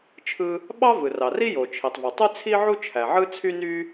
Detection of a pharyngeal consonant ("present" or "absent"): present